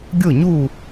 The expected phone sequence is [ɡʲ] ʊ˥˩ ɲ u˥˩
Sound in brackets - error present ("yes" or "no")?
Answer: no